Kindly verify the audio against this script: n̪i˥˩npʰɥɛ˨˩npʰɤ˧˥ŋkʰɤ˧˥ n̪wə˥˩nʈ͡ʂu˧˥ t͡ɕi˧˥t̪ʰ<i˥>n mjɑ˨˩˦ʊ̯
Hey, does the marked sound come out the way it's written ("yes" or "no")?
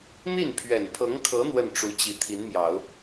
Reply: no